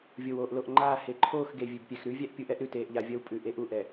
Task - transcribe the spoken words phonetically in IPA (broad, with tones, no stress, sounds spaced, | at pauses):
vʲ o˨ w oː˨ ʔ l o˨ ʔ ŋ͡ǃ aː˦˨ h e˨ ǃʰ oː˦˨ x ɡ e˨ vʲ ʉ˨ b pʲ ɛ˨ x ɾ ʉ˦ vʲ æ˦ ʔ pʲ u˨˦ ʔ ɛ˦ ʔ ɾ ʉ˨ t eː˨ ʔ ʎ a˨ vʲ ɐ˦ w pʼ ʉ˨ ʔ e˦ ʔ u˨˦ ʔ ɛ˨